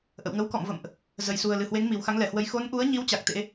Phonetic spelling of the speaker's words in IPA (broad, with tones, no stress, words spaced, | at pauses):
ʔə̰˧˨wŋə˨˦wkɔ̰˧˨mvə̰˧˨mʔ | zə˨˩jsu˨˩ə̯lɨ˨˩hwe˨˦ŋ mi˨˩wxa˨˦ŋlɛ˨˩hwə˨˦j xo˨˦nʔu˨˦ə̯ɲi˨˦w t͡ɕa˨˩k̚t̪ḛ˧˥